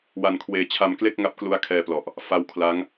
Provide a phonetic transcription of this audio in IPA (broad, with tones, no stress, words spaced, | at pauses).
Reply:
wa˧nkʰweː˧ t͡ɕʰa˧mkle˥˩k̚ŋa˦˥p̚klu˦˥a̯ kʰɛː˧plɔ˨˩ʔ | fa˦˥w kʰla˦˥ŋ